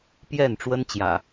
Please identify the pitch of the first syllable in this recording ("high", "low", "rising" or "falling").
falling